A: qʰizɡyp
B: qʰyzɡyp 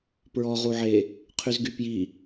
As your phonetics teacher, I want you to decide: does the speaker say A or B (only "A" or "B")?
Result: B